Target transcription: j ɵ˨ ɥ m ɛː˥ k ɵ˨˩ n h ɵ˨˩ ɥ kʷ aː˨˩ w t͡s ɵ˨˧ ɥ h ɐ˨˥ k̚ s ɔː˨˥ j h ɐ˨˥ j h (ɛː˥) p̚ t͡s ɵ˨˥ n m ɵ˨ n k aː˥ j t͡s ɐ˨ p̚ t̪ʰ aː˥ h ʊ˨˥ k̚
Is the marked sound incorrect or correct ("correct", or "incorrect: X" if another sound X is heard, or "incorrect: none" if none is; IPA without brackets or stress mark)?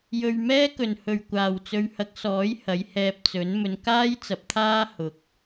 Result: incorrect: ɛː˧